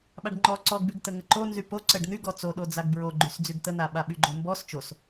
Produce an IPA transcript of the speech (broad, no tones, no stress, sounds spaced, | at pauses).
ɓ a ɖ ŋ͡ǃ ɔ ǀ ɔ ɡ b y ɡ t̪ ə ŋ ə ǃ o n z y p o ǀ ə ɖ n̪ y ɡ ɔ t͡s o ɗ o d͡z a ɡ b ɹ o ɡ͡ǃ y s d͡z y ɡ t̪ ə n̪ a ɓ a ɓ y ɡ͡ǃ o m b ɔ s t͡ʃ o s